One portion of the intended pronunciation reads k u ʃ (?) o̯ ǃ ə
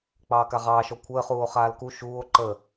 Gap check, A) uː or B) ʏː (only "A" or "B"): A